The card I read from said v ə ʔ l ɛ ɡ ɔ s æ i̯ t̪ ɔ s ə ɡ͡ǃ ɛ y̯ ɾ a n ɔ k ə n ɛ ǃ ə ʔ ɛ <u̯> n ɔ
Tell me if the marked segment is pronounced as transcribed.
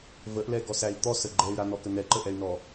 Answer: no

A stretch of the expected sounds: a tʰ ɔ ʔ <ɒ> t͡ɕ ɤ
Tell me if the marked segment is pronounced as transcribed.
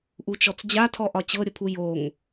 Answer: yes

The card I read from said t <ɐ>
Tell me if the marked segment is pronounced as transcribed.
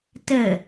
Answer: no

